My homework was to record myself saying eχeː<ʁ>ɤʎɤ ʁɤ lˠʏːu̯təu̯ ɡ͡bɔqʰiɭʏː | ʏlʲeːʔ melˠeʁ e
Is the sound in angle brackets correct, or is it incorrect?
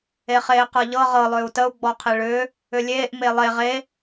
incorrect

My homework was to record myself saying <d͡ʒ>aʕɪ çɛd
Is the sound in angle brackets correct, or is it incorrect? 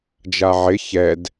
correct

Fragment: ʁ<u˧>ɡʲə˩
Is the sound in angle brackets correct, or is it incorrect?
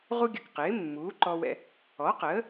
correct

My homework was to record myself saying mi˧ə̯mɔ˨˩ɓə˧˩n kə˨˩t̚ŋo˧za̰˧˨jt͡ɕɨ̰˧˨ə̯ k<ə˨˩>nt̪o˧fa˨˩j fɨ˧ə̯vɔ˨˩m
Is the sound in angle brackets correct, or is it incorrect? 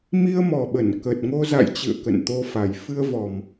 incorrect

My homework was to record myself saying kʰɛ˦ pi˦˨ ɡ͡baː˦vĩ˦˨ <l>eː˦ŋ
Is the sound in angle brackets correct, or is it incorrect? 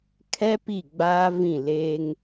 correct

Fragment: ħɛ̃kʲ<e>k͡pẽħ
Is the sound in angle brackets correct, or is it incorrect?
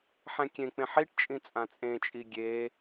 incorrect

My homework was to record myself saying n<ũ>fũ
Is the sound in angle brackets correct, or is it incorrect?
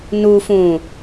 incorrect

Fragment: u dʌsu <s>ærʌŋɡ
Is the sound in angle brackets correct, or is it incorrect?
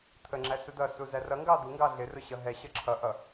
incorrect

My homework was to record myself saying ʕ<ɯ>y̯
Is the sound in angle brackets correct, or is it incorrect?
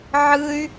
correct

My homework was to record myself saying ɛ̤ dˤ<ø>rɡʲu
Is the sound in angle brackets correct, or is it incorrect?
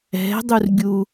incorrect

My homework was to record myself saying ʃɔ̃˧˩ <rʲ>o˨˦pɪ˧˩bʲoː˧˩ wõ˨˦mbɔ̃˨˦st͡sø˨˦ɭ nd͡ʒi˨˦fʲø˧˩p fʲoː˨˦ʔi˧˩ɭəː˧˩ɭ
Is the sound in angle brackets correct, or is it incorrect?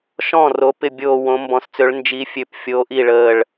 incorrect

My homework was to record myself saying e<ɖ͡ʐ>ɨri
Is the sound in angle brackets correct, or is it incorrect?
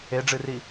correct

